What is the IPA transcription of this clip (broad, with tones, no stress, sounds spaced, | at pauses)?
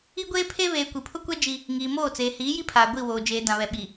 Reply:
i˦ ɡʷ eː˦ pʰ e˦ β eː˨ kʷ i˨ pʰ ʊ˦ kʷ ɛ˦ d͡ʒ i˦ | ŋ iː˨ m oː˦˨ t͡s eː˨ h iː˨˦ j i˦ pʰ aː˨ ɡʷ i˦˨ w oː˨ d͡ʒ eː˨ d ã˨ β ɛ˨ ɓ i˨